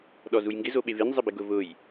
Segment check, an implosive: present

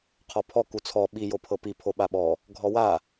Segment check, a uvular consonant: present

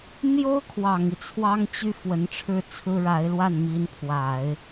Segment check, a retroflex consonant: present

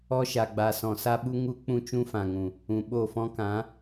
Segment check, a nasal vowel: present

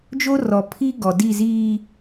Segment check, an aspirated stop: present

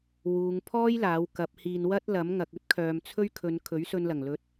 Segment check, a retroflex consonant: absent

